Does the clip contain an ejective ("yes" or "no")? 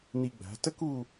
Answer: no